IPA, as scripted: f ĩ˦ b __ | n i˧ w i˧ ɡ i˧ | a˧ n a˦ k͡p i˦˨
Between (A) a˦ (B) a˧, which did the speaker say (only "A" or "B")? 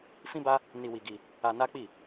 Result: A